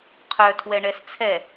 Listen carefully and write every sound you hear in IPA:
qʰ œ tʰ w ɛ ɳ ɛ s t͡sʰ ɛ

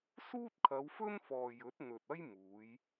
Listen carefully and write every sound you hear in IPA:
s uː˥ t̚ kʰ ɐ˨˧ w f ɵ˥ n f ɔː˨ j ɵ˨˥ t̚ n̪ ɵ˨ t̚ ɐ˥ j m uː˨˧ j

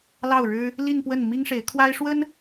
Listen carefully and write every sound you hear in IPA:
l ɑ˥˩ ʊ̯ ɻ ɻ̩˥ | l i˥˧ n p w ə˥˩ n m i˥ ŋ ʂ e˧˥ ɪ̯ kʰ w a˥ ɪ̯ ʂ w ə˥ n

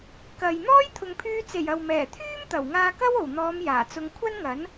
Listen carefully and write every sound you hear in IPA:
k ɐ˨ j n̪ ɔː˥ j t̪ʰ ʊ˨ ŋ pʰ yː˧ t͡s e˨˩ j ɐ˨ w m ɛː˨˩ t̪ʰ yː˥ m t̪ ɐ˨˩ w ŋ aː˧ k ɐ˥ w o˨˩ w n̪ ɔː˨˧ m j aː˨˩ t͡s ʊ˧ ŋ kʷʰ ɐ˥ n ŋ ɐ˨˥ n

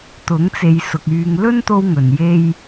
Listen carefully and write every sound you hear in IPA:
t̪ ʊ˨˥ ŋ t͡s e˨ j s ʊ˨ k̚ yː˨ ŋ l ɵ˥ n t̪ o˧ w ŋ ɵ˨ n j e˥ j

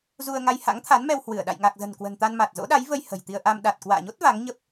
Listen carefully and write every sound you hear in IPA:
z u˧ ə̯ ŋ a˧ j h a̰˧˥ ŋ t̪ʰ a˨˦ n m ɛ˧ w h w ɨ˧˩ ə̯ ɗ a̰˧˨ j ŋ a˨˩ k̚ z ə̤˨˩ n k w ə̤˨˩ n t̪ a˧ n m a˨˩ t̚ z o̰˧˥ ɗ a˨˦ j v ə˧ j h ə̤˨˩ j t̪ i˧ ə̯ ʔ a˧ m ɗ a˨˩ t̚ k w a̰ː˧˨ ɲ o˦˥ t̚ v a˨˦ ŋ ɲ ə˦˥ p̚

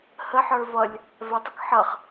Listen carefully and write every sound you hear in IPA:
h ə ħ ə˞ v ʌ lʲ | v ɛ tˤ ə k ħ ʌ χ

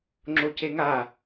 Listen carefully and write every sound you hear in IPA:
ŋ͡ǁ o c e ŋ a

